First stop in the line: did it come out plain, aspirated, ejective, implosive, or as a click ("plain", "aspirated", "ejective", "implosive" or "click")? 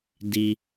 plain